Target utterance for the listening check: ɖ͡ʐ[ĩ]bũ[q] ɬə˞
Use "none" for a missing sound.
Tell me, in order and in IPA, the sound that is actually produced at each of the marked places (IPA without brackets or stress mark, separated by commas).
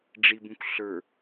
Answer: i, k